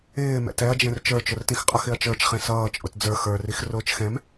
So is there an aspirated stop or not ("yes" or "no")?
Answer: no